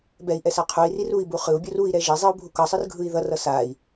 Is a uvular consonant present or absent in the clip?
present